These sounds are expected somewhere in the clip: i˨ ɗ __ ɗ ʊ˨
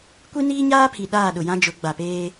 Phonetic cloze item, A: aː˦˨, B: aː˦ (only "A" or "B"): A